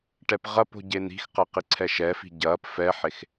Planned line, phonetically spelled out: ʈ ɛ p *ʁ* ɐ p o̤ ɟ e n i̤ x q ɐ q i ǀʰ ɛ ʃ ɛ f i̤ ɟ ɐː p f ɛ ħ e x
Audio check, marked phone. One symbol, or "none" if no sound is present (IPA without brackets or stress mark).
ʁ